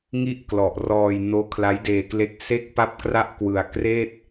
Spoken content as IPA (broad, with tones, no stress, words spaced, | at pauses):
ŋi˥˩ʔklɔ˨˩ʔrɔː˧j noː˦˥kʰla˦˥jdeː˧kle˦˥k̚ se˦˥k̚ pa˥˩p̚kra˥˩ʔkwɯ˧a̯ kreː˥˩t̚